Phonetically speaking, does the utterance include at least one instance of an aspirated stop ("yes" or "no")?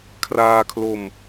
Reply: yes